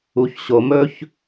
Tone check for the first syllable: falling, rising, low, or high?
low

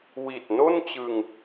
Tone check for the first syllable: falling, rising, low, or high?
low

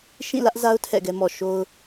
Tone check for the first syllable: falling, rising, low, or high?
falling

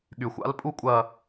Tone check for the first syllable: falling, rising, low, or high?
low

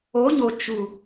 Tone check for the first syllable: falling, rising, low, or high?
rising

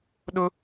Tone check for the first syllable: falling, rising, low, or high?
high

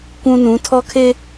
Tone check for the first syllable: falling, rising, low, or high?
high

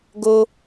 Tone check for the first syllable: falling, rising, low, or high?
high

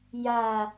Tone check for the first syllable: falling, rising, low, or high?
low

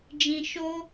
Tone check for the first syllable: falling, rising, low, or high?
low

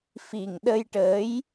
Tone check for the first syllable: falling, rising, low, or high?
low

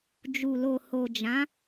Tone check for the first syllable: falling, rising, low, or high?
low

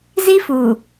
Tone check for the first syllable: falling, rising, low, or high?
high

